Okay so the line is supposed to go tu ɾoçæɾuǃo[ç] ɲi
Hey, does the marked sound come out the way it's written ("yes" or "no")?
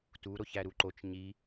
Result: no